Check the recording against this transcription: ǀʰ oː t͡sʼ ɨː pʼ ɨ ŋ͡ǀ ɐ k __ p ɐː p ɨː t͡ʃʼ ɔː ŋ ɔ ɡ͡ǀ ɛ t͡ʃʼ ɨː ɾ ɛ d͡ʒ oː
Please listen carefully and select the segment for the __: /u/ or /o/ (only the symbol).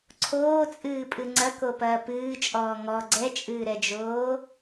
o